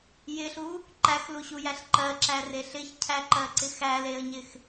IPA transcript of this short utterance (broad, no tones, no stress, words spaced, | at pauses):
jɪɬu | ǃæxluɕujæɬ ǃɜǁære ɬɪçcʰæǃɜǀɪ xæleə̯ɲɪx